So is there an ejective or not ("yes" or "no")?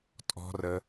yes